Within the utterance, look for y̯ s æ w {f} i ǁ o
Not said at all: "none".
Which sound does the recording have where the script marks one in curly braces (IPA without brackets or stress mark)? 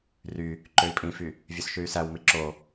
m